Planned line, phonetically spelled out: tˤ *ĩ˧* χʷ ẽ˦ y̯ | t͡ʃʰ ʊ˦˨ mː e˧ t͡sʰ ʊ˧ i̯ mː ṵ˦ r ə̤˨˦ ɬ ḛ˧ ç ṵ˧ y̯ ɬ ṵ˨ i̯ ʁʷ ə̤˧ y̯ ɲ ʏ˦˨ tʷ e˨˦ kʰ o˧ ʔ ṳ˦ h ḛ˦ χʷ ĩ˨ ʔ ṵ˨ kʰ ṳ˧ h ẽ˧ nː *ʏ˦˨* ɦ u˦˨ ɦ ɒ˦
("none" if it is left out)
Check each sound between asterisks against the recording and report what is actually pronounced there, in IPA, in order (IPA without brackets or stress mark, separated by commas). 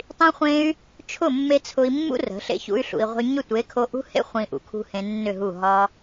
ĩ˦, ʏ˦˨